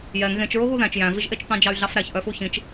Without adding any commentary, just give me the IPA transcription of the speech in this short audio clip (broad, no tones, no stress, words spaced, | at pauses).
jɛŋ ɣẽt͡ʃ ɹoɣuðæ̃t͡ʃ jæ̃viʒʔet͡ʃ t̪ɑ̃d͡ʒɑy̯ɮɑfɾæç ʔœfuçĩt͡ʃ